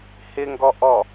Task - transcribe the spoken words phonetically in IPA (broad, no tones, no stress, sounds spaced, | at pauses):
h ɪ ŋ ɡ ɔ ʔ ɔ